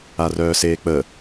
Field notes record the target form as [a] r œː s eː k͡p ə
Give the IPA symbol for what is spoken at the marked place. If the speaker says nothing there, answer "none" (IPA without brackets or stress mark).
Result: a